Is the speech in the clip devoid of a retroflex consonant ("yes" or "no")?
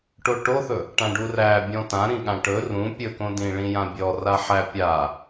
no